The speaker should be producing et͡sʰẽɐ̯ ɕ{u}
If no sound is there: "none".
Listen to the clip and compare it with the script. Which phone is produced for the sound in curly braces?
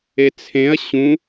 ũ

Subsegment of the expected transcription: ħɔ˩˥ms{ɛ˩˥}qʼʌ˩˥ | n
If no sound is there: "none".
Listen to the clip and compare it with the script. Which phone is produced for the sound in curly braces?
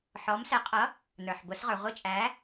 ɛ˩˥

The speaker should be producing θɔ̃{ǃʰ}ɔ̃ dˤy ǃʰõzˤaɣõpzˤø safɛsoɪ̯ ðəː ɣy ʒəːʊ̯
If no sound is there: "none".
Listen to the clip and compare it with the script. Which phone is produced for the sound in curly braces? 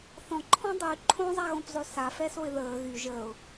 ǃʰ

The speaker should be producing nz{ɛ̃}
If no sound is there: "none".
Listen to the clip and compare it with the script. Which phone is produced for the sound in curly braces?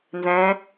ɛ̃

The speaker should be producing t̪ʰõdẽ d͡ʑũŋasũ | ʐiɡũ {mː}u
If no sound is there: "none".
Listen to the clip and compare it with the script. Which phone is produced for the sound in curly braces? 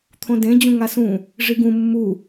mː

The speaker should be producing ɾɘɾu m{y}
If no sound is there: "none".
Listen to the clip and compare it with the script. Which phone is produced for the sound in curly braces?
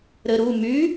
y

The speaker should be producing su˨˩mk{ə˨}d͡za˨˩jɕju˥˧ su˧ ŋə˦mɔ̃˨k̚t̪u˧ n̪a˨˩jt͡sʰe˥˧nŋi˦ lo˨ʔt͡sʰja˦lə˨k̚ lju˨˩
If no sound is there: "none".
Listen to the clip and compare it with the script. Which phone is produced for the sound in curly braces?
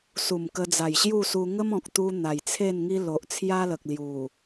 ə˧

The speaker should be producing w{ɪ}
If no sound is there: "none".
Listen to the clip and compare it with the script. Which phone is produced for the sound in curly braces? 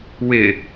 ɪ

